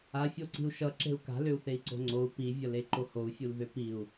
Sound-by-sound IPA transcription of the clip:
a fʲ o ǀ i̤ u̯ ʃ ʌ ǁ e̤ u̯ k a̤ l ʏ u̯ θ e i̯ ǀ o̤ ŋ͡ǀ o u̯ p i vʲ ʌ l e ǃ o h o u̯ fʲ u l ð ʏ p i u̯

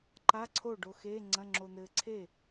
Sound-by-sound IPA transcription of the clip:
ǃ a˧˥˧ ǀʰ o˥˩ ɖ o˧ x e˧˥˧ ŋ͡ǀ ɐ̃˧˥˧ ŋ͡ǁ o˧ n̪ ɘː˧ ǀʰ eː˥˩

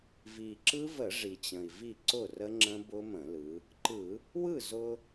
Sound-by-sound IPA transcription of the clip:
v i˨˩ ǁ ɯ˦˥ v ə˧˩˧ ʐ i˨˩ t͡ɕ ə̃˨˩ i̯ v i˥˩ ǀ ʊ˥˩ r ə˦˥ ŋ͡ǁ ə̃˦˥ b ʊ˦˥ m ə̃˧˩˧ l ɯ˩˧ | ǃ ɯ˧˩˧ | w ɯ˥˩ z ʊ˧

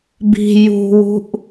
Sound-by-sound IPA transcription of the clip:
b i̤ j ṳ w ṳ ʔ

